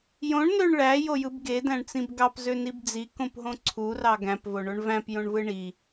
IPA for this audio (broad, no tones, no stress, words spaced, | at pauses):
jõɳnøɳ ɭæjojɯb ɡedæ̃ɳt͡sĩb ɡɑpzønib d͡zikõpɦõ ǀʰurɑ ɡæ̃pvoɳoɳ væ̃pjõɳvɯ ɳi